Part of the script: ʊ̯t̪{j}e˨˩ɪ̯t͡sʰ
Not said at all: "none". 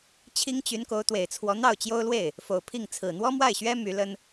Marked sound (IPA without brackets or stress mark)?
w